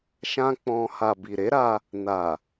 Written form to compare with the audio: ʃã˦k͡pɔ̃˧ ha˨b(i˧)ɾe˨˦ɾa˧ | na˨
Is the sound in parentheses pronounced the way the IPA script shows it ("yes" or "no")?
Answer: no